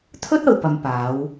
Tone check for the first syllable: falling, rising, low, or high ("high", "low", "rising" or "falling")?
high